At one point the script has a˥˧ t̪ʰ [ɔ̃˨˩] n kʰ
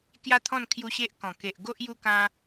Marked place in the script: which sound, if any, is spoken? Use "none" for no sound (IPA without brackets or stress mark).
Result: ɔ̃˥˧